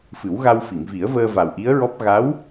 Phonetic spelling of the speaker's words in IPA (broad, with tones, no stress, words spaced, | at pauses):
fɨ˨˩˦wɣa˧w fi˨˩˨ŋvi˨˩˦ə̯vəː˧ va˨˩wʔi˧˥ə̯ɹɔ˦˥p̚ ɣa˧˥w